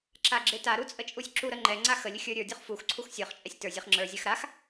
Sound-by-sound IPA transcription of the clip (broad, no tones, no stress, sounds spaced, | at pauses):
ǁ a ɡ͡ǁ e t a ɾ u t͡sʼ ə t͡ʃʼ u sʲ ǁ u ɾ ə ŋ͡ǃ ɛ ŋ͡ǀ a x ə lʲ ə xʲ ə˞ ɾʲ ə˞ dʲ u χ f u x ǀʰ u x sʲ ə˞ χ t͡ʃʼ ɛ sʲ t ə˞ zʲ ɛ χ ŋ͡ǁ ə˞ zʲ a x ɾ a x